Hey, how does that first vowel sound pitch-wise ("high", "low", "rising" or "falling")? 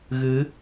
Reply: rising